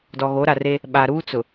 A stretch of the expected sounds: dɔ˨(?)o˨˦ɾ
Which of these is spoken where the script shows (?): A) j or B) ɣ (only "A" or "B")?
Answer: B